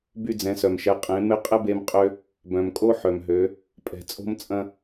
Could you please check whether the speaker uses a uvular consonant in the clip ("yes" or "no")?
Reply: yes